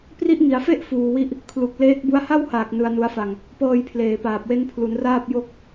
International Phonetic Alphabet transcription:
p r i˦˥ ʔ ŋ i˩˦ a̯ f e˥˩ ʔ f uː˧ w i˥˩ ʔ | kʰ l u˨˩ k̚ l eː˦˥ k̚ b u˦˥ a̯ h a˥˩ w h aː˨˩ k̚ n ɯ˧ a̯ n u˧ a̯ f a˧ ŋ | p ɤː˧ j pʰ l eː˨˩ p aː˨˩ p̚ w e˦˥ n pʰ l u˩˦ n r aː˥˩ p̚ j o˥˩ k̚

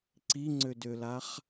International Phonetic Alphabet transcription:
ǀ i ŋ͡ǀ ø d ø l a χ

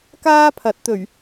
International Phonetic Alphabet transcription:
k aː˥ pʰ ɐ˨˥ t̚ t̪ ɵ˨˩ ɥ

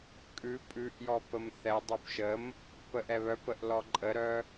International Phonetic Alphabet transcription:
kʼ ʉ pʼ ʉ ʔ j ɔ p ə m θ ɛ dˤ ʉ p ʃ ə m | p ə ʔ ɛ β œ p ə ʔ l ɔ ǃʼ ə ɾ œ

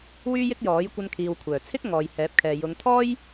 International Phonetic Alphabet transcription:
w yː˥ j ɪ˥ k̚ j ɔː˨˥ j kʷ ɐ˧ n kʰ iː˨ w kʷʰ œː˨˩ t͡sʰ ɪ˥ k̚ ŋ ɔː˨ j h ɛː˨˥ p̚ kʰ ɛː˨ j ʊ˨˧ ŋ t̪ʰ ɔː˥ j

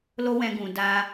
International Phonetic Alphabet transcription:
l o˦ w ɛ̃˧ ɡ ũ˨ d a˧

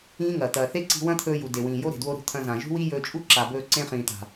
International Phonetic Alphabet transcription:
ĩː˦ ŋ ɐː˨ t̪ ɐː˨ θ e˦ ǀ i̤˧ w ɐ̃˦ t̪ʰ ɵː˧ j u˨ d e˨ w ĩː˨ j o˦ ɾ e̤˨ d w o˦ ɾ ṳ˧ t̪ʰ ɐ̃˧ z ã˨ ʒ ṳ˦ w i˦ j ɵː˧ t͡ʃʼ u˦ ǁ a˨ b ɵː˧ ǀ ẽ˧ χ ĩː˨ t̪ a̤˨

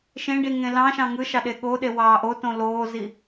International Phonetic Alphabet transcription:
ʃ ẽ ɖ i ŋ ẽ l ɑ̃ ʃ ɑ̃ ŋ ɯ ʃ ɑ ɗ e ɠ o ɗ e w ɑː ʔ o t õ l oː z i

